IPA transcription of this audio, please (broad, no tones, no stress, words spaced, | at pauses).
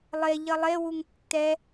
lˠe ʎʌlˠe wuŋtːɛ